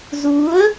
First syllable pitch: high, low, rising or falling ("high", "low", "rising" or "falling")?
rising